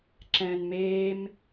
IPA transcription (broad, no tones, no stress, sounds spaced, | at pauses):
ǁ ɛ̃ː n m eː m